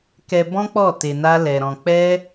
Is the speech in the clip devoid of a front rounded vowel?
yes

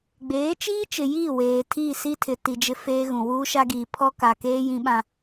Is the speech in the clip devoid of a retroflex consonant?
yes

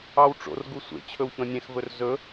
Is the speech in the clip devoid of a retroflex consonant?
no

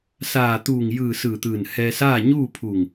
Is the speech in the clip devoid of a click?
yes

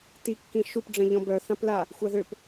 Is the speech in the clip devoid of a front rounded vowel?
no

